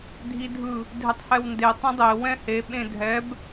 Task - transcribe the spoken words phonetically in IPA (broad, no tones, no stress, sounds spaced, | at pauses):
dʱ i dʱ ɯ | dʱ ɪ tˤ h ɛ w n d e tˤ ĩ dˤ e w ɛ̃ h e ɓ ẽ dʱ ɛ b